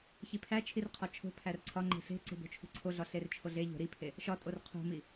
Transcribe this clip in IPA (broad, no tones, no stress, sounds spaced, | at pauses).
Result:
ç i pʰ æ t͡ʃʰ i r qʰ ɒ t͡ʃʰ o̤ pʰ æ r ǀʰ ɒ ŋ͡ǃ e̤ ɬ e̤ ǀ e̤ b o̤ t͡ʃʰ ṳ ǀʰ o ɮ ɒ ɬ e r t͡ʃʰ o ɮ e ʎ o̤ ɾ i pʰ e | ʃ ɒ tʼ o r qʰ o̤ m i